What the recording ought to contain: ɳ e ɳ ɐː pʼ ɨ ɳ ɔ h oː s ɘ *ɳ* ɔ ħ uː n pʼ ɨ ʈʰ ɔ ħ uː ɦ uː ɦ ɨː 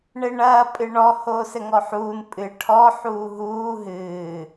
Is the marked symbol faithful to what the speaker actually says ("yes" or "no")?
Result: no